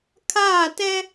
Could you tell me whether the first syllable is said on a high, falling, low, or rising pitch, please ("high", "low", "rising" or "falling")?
falling